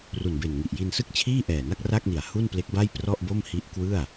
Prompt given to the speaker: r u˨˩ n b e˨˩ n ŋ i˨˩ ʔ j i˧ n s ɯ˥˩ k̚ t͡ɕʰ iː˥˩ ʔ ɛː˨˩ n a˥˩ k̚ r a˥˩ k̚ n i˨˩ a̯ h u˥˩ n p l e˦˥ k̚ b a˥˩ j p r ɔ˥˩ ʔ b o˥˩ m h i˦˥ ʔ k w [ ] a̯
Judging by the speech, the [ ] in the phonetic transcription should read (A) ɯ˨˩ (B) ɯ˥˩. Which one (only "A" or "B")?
B